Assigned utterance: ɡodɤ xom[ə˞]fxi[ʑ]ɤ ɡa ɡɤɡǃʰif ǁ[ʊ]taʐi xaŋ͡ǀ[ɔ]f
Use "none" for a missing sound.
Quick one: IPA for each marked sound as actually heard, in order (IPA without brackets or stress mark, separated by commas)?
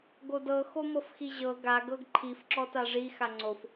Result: ɤ, ʑ, ɔ, o